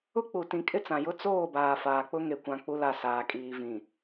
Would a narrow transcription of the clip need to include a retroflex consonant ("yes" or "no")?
no